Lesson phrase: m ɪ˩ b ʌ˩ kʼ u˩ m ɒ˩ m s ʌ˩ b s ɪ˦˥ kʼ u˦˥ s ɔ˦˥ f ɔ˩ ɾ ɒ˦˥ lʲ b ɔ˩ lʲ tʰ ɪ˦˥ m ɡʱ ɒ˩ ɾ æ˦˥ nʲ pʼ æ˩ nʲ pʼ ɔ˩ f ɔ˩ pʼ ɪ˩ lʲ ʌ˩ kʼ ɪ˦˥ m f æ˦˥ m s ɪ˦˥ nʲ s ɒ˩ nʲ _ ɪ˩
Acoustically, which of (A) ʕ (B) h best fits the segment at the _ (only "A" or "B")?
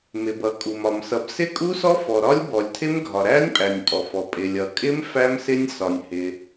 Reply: B